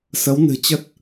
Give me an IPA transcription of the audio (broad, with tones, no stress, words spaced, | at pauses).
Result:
sə˨˦wnɨ̤˨˩t͡ɕə˦˥t̚